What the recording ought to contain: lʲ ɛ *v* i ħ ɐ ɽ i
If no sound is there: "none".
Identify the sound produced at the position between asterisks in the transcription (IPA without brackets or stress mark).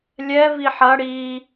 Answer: v